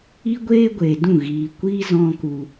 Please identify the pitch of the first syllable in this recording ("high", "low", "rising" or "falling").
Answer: high